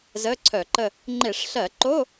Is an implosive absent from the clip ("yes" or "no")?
yes